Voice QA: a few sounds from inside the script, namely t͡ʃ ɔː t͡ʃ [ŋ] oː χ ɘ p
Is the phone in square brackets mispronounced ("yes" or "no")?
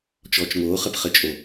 no